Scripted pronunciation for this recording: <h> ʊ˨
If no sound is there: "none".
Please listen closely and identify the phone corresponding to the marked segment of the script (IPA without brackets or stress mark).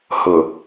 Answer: h